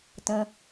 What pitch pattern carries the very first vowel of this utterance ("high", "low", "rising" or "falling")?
low